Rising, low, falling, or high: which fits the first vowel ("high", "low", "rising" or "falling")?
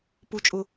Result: high